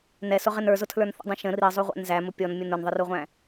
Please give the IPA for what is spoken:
n ɛ s ʊ ʁ ɪ n ə˞ z ʊ tʰ l ə˞ n θ ə̰ dˤ ĩ ʃ ə̃ r i zˤ u ʁʷ æ̰ n z æ m ʊ pʲ ɔ n mʲ ʊ n ʊ n ðˤ ɪ r u ʁʷ æ̃

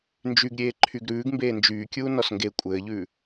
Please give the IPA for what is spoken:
n d͡ʒ y ɡ ɾʲ eː ǃʰ y ɡ ɾ ʉː ɡ m b eː n d͡ʒ yː kʲ uː n ɔ s ŋ ɡ e kʷʼ ɘː ʎ ʉː

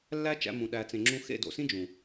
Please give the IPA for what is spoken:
lː æ˦ t͡ʃ æ̰˧ m ũ˨ ɗ æ˨ t͡s ẽ˨ ŋ͡ǁ ũ˧ x ḛ˦˨ d o̰˨ s ĩ˦ d͡ʒ ũ˨

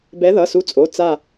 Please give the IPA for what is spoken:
b ɛ˨˦ ð ʌ˩˧˩ s u˨˦ t͡sʼ o˩˧˩ t͡s a˥˧

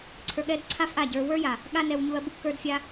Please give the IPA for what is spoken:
ǀʰ ə˞˧ ɠ ɛ˦ d ǀʰ a˦ f ʔ a˦˨ ɟ ə˞˧ w ə˞˦ j a˨ | ɠ a˦ n ɛ˧ w ɲ u˧ ɐ̯ b u˦ k ə˞˦ d fʲ a˦

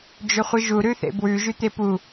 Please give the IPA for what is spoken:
d͡ʒ ɵ χʷ ɨ ʒ u ɾ ʉ θ ḛ b w ʉ ʒ ʉ t̪ e p u

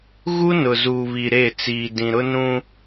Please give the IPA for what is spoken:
ɣ u˦ n ʊ˨ z uː˨ β i˨ ɾ e˦˨ t͡s iː˨ d ĩ˨ ɾ ʊ˦ n ũ˦

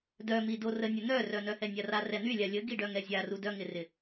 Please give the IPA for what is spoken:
d œ m i d o r ə nʲ ʊ n œ r œ n œ h ɛ nʲ a r a r ɛ n̪ y lʲ a lʲ ə ɡ i ɖ œ ŋ ɛ zʲ a r u d œ ŋ ɪ r ɪ

